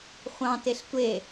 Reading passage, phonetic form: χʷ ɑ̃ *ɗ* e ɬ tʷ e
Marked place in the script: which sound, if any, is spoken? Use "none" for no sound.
t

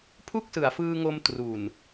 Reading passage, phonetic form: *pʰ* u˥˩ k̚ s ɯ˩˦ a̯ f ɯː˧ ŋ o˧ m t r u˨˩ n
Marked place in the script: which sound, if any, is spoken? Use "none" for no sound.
pʰ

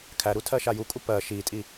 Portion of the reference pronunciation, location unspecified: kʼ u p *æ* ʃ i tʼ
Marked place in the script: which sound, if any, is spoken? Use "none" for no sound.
ɜ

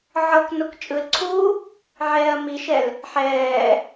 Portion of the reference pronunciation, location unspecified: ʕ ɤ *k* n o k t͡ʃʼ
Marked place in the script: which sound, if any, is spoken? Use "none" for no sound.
k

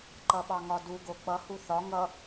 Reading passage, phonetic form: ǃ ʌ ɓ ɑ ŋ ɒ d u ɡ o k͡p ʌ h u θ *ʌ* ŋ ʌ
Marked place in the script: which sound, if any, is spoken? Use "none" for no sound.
ɒ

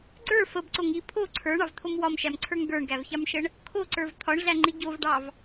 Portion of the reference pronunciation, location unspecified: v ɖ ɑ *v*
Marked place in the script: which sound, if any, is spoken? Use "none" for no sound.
v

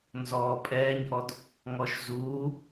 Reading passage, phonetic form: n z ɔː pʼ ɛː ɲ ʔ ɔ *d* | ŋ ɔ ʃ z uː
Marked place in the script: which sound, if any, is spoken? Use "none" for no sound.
d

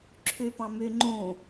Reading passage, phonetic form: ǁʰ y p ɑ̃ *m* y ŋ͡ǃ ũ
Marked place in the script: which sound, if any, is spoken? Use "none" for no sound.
m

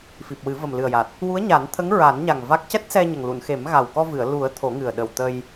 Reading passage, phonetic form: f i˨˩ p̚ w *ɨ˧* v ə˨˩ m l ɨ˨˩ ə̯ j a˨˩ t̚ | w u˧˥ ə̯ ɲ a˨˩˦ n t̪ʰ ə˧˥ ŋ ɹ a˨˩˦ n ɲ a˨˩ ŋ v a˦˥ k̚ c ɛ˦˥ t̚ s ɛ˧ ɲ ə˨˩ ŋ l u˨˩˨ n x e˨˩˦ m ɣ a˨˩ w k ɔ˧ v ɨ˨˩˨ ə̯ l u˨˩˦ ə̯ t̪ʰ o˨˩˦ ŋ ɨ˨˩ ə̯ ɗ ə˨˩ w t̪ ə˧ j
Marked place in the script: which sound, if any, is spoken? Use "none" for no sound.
ɨ˨˩˦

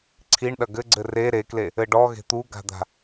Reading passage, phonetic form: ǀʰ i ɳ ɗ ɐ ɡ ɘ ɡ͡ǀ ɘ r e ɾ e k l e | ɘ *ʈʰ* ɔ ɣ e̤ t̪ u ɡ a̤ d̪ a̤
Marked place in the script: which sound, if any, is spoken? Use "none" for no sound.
ɖ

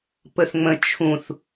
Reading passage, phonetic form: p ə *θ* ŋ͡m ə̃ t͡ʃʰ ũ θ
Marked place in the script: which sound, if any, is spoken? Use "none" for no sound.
θ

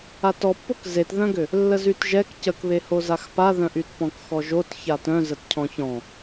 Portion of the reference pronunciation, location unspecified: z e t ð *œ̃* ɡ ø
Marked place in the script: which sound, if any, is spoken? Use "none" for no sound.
œ̃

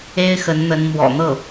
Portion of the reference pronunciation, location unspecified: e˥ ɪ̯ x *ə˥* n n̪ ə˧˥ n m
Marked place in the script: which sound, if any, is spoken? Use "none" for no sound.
ə˧˥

